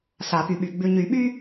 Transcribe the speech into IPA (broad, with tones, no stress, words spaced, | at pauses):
sa˨˩˦py˨ɓy˨ ɡ͡bʉ˨ɲy˨˩˦ ɓy˥